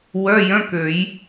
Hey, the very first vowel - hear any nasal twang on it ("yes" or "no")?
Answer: no